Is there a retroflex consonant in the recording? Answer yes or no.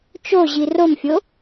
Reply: no